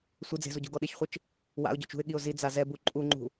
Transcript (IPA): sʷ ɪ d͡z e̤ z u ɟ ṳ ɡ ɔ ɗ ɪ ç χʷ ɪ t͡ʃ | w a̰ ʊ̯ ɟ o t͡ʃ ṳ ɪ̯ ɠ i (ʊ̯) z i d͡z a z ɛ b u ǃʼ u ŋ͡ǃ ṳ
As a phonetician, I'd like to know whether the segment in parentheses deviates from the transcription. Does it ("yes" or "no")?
no